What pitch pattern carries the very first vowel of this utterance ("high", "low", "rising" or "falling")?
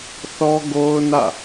high